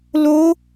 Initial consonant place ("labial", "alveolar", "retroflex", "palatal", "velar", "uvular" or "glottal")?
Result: alveolar